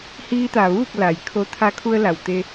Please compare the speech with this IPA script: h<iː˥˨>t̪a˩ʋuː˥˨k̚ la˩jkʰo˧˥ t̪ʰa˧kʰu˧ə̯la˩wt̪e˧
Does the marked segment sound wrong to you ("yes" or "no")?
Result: yes